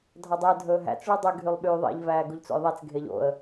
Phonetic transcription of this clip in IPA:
dʱɑdˤœə̯ dʱɵːɦæ̰t͡s ɭudˤʉ ɡʱylˠɓyːðˤḭʎ væːɡuʎt͡so̰jðˤæt͡s ɡʱeʎo̰ə̯

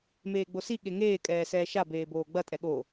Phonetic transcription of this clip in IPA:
meːɡ͡bosi ɠeŋeː kʼɛːsɛːʃa beːboːɡ͡bɐ tʼɛɠo

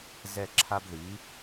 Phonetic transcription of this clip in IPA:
zɛ˦˨ǁʰa˦b ði˨˦

